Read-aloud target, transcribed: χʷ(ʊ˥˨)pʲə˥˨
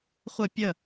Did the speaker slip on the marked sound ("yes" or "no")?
yes